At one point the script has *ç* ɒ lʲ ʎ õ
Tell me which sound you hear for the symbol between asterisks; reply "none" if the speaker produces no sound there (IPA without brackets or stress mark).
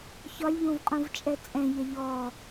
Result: ç